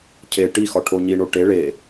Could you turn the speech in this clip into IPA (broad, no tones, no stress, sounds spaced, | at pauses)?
cʰ e ʈ i x ɒ ʈʰ o ɲ i ɳ o ʈ e ɭ e